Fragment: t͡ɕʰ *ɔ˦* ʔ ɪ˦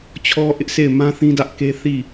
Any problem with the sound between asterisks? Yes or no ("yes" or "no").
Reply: no